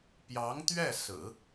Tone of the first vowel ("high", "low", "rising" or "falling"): rising